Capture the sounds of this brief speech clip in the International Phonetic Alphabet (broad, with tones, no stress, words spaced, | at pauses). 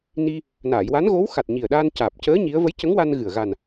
ni˧ | naː˨˩˨jwa˧˥nɣo˧˥w xa˨˩t̚ ɲi˨˩ə̯ɗaː˧n caː˨˩p̚cəː˧˥ ɲi˧˥ə̯ və˧˥jcə˧˥ŋwa˧n ɣɨ˨˩ə̯ ɣa˨˩n